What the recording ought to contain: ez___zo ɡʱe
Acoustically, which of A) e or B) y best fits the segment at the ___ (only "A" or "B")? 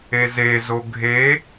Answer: A